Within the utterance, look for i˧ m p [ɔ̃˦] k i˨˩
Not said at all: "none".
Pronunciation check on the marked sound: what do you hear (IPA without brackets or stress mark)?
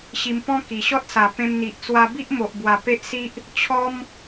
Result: ɔ̃˦